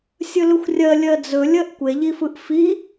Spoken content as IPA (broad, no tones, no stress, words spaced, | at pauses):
sʲɵlɵxʷrʲɜ lʲɜd͡zɵ lʲɜʔkʷeʎifɯʔ fi